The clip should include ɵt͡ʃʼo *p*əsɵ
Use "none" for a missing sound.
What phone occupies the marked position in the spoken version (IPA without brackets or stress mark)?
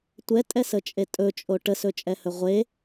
ʈ